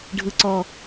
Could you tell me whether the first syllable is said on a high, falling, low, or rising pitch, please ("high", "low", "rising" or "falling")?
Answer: high